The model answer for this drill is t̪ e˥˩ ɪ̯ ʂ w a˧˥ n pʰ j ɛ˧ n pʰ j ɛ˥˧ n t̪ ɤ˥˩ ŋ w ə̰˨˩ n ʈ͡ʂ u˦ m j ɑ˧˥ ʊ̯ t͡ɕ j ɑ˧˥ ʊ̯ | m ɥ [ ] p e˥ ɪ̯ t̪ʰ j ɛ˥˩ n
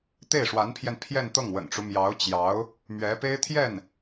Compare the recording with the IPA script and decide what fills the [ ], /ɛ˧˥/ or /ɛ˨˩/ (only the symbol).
ɛ˧˥